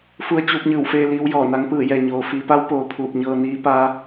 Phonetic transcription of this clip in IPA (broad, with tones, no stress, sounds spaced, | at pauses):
f u˧ ə̯ t͡ɕ uː˧ p̚ ɲ ɯː˧˩ w f eː˧ l iː˧˥ w j ɔː˧˩ n a˧˥ ŋ p ɯː˧˩ j ɛː˩ ɲ oː˩ f iː˩˧ p a˧˥ w p oː˩˧ pʰ uː˧˩ p̚ ɲ ɤː˧ n iː˧˥ p a˧˥